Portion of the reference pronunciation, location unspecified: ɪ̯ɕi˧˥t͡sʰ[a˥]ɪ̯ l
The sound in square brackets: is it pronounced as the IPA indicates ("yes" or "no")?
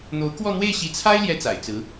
yes